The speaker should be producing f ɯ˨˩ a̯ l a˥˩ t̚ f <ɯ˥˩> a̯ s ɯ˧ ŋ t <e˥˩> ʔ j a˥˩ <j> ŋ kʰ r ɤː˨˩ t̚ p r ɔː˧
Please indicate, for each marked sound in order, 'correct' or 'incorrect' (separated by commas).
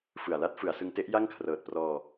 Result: incorrect, incorrect, incorrect